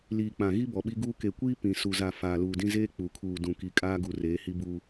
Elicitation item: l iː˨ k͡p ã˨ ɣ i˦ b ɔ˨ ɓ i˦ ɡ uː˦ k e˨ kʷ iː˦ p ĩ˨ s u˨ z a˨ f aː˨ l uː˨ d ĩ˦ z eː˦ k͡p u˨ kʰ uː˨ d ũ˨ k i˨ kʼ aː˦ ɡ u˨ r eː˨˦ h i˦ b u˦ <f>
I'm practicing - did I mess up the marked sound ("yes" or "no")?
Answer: yes